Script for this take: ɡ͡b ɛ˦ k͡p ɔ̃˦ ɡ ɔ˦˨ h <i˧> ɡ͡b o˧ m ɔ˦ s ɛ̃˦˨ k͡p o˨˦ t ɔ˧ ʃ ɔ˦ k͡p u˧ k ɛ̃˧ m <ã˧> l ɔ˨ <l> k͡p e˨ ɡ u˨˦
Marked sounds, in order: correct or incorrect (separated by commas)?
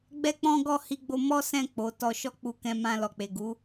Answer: correct, correct, incorrect